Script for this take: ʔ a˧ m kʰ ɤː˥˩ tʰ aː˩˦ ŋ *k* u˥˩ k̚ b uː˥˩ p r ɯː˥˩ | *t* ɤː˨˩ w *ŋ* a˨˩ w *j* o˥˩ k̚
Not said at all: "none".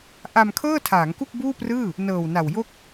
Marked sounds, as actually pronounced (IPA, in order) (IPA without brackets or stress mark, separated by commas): k, n, n, j